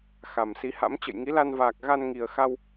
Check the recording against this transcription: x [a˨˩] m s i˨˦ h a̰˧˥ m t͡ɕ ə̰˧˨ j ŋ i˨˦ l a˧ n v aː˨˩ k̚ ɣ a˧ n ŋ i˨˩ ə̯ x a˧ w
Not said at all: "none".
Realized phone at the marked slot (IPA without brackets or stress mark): a˨˩